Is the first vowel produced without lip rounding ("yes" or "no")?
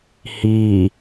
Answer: yes